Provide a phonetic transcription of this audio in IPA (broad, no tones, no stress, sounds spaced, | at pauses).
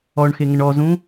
ɔ ɳ x e ŋ ə ɳ ɔ z ũ